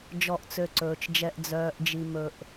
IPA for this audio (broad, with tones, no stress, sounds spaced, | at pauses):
d͡ʒ ɔ˨ ʔ t͡s ø˨ ǀ ɵː˩ t͡ʃ d͡ʒ ɛ˨ ʔ d͡z œː˩ ʔ d͡ʒ i˩ m ɵ˨ ʔ